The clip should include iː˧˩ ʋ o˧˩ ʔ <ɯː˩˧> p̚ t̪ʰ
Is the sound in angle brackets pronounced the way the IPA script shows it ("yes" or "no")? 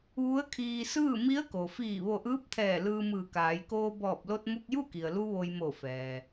no